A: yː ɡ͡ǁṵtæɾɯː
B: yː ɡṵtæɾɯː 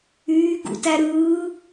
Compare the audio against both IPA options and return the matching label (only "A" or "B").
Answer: B